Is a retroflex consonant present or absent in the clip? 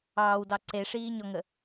present